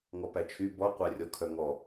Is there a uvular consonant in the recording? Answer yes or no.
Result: yes